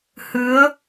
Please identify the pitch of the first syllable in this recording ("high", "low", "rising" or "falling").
rising